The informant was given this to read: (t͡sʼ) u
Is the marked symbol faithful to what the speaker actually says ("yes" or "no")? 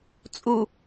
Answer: yes